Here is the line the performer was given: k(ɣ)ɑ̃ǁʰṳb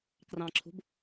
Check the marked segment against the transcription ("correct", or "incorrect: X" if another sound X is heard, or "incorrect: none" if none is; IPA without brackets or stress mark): incorrect: r